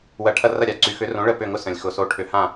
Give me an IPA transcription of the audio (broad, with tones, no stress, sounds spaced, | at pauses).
w ɐ˧˩˧ ʈʰ ɐ˦˨ r ɐ˦˨ ɾʲ a˨˩ ǀ y˨˥ x ʏ˨˥ r õ˨˥ ɭ ə˦˨ p ʏ˦˨ ŋ ʊ˦ s ə̃˨˩ lʲ x ʊ˧˩˧ s o˨˥ ʈʰ ʏ˧˩˧ h ã˦˨